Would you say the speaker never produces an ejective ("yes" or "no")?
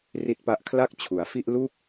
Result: yes